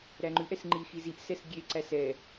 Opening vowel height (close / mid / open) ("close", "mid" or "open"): open